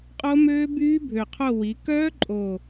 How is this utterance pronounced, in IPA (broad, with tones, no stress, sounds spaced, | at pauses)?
qʼ o˦˥ m øː˦˥ b yː˦˥ bʱ ø˨˩ qʰ o˦˨ w i˩˧ k œː˦˥ ǃʼ o˨˩